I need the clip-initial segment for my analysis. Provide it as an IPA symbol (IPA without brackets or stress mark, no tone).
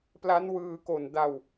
p